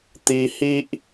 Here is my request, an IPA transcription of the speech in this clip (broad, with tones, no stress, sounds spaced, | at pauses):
t̪ i˧ h i˦ ʔ